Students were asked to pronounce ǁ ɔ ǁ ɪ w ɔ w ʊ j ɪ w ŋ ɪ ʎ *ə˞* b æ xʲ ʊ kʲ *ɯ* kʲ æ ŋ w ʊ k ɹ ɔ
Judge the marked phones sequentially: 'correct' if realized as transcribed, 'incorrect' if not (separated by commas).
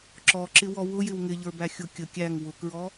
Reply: correct, incorrect